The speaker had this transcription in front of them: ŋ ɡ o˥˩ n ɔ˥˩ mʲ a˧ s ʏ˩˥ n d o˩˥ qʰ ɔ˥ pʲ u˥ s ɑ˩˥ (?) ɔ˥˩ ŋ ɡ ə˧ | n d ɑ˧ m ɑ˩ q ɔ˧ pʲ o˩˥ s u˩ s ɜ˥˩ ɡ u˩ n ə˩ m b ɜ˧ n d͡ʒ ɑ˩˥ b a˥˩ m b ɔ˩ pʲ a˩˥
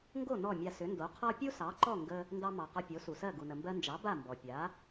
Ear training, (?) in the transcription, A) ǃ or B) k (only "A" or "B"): A